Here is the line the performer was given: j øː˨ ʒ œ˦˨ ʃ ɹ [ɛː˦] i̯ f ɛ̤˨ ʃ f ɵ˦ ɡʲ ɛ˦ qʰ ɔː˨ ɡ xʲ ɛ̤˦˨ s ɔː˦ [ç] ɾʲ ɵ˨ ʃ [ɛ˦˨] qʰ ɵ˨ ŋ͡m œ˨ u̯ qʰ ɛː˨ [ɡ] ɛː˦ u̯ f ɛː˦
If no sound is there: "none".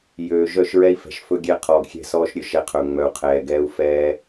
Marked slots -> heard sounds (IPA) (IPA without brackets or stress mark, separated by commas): ɛ˦, ʃ, ɛ˦˨, ɡ